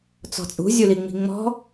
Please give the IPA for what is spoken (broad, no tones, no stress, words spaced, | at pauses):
t͡sɔ̤t͡sʼṳ zʲuliŋ͡mi̤ŋ͡mɔ̤